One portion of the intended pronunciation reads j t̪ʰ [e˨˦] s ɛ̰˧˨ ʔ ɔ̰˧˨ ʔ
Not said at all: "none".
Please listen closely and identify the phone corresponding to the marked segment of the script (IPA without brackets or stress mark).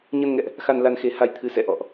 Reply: ɨ˨˦